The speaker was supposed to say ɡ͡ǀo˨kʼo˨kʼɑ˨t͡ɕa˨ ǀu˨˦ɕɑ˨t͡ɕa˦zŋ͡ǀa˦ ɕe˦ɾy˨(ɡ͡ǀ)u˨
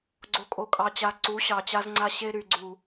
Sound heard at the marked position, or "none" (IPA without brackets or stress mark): ɡ͡ǀ